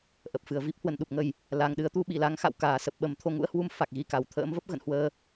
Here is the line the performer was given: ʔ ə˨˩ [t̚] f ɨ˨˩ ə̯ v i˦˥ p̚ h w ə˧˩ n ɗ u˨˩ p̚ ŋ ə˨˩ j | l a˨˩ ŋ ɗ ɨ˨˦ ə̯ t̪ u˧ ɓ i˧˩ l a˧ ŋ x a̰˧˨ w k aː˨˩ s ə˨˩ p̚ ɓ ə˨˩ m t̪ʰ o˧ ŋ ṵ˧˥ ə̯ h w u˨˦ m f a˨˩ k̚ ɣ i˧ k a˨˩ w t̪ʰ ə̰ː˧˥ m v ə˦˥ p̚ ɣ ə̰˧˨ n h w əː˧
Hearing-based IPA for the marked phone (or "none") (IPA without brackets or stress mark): p̚